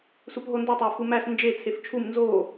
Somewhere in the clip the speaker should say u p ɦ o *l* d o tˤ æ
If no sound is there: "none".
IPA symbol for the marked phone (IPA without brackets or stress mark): n